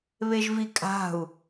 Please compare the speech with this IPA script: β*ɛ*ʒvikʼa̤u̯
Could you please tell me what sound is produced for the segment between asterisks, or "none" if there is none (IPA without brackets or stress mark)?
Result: e